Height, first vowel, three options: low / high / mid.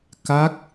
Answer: low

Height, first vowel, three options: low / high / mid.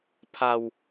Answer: low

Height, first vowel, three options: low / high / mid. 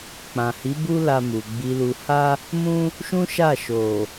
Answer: low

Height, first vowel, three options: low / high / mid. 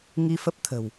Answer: high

